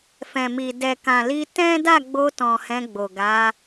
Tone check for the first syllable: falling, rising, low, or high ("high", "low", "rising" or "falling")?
low